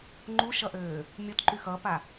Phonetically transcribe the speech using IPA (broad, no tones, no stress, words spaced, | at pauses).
ŋ͡ǃuʃʌʔøː | mʲɔtǃy xʌpa